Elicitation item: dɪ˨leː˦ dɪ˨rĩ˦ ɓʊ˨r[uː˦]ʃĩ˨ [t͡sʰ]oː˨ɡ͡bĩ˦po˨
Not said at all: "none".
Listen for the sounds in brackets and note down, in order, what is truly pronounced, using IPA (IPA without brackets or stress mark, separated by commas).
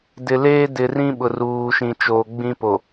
uː˨, t͡ʃ